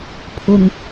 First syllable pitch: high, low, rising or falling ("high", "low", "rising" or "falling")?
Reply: low